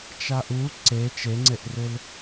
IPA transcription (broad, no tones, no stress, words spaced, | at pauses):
t͡ʃaʔu ǀe t͡ʃeŋ͡ǀeʔrɪl